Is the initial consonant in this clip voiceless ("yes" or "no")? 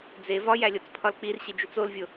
no